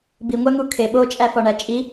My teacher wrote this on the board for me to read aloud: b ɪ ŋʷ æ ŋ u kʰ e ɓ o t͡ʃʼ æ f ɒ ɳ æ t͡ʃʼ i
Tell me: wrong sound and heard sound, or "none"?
ɪ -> i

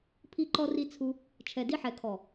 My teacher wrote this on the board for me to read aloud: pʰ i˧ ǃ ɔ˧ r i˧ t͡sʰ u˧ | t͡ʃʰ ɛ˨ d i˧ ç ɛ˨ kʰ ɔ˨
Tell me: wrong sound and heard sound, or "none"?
ç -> ħ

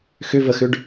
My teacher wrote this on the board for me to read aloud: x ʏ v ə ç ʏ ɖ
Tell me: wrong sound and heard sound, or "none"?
ç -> x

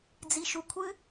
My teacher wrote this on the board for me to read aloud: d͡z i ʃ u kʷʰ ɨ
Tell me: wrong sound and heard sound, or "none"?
none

